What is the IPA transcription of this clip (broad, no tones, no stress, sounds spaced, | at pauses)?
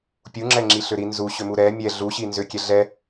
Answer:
pʲ u ŋ͡ǁ ɛ ŋ͡ǁ i ɬ ʏ ɾ i n z u ɕ ʏ m u ɾ ɛ mʲ ɛ ɮ u ɕ i n z ʏ kʲ ɛ ɮ ɛ